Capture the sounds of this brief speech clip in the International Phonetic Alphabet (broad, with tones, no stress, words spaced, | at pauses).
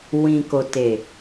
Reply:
wĩ˨ko˨te˨